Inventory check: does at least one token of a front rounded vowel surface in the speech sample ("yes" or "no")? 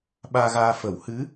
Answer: no